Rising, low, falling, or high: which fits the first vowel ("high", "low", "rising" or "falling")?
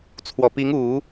low